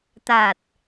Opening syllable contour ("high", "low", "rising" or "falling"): low